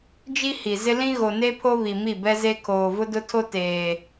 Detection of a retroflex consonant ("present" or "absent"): absent